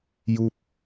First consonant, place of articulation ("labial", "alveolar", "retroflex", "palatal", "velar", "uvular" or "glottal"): palatal